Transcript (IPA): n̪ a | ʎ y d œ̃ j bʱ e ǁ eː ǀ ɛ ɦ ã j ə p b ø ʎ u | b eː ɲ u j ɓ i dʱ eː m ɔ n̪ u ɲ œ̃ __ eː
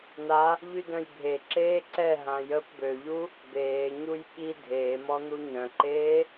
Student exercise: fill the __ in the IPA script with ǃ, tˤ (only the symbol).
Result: ǃ